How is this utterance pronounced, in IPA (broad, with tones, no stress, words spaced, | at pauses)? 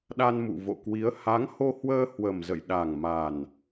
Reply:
ɗa˧nmṵ˧˨vo̰˧˨kwi˨˦ə̯ ha˨˦ŋ ho˧hwəː˧ hwə˨˩m zə̰˧˨jɗa˨˩ŋ ma˨˩n